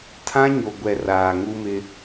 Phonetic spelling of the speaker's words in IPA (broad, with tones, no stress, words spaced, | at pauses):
tʰã˦ɲo˨ ɡʷɛ˨ raː˨ŋu˦mɪ˦